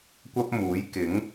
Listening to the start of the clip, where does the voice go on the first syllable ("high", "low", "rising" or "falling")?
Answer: high